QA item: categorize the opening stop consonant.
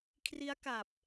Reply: aspirated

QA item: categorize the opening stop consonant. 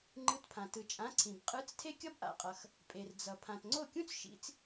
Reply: click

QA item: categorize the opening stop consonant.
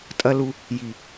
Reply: ejective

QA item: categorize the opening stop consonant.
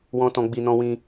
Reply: plain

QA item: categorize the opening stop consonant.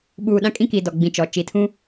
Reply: implosive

